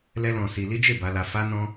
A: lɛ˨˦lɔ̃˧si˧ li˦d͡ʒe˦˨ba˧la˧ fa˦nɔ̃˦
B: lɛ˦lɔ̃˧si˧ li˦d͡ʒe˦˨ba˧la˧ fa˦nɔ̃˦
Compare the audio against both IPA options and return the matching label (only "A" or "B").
B